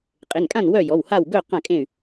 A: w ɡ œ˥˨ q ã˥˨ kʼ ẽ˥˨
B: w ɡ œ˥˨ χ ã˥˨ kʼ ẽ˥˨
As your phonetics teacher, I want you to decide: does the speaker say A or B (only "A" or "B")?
A